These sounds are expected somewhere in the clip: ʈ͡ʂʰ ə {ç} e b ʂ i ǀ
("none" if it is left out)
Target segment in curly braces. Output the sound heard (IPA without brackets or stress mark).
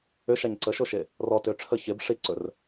ç